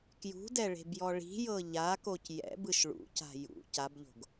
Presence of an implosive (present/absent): absent